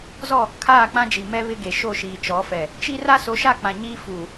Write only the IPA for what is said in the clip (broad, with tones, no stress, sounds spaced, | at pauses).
z ɔ˦˨ | kʰ aː˦˨ k͡p ã˦ d͡ʒ i˨ m ɛ˦ β ɪ˦ ɡ e˨ ʃ o˦˨ ʃ iː˨ t͡ʃ ɔ˨˦ f ɛ˨ | t͡ʃ i˦ r a˦ s o˨˦ ʃ a˦˨ k͡p ã˨ ɲ iː˦ f uː˨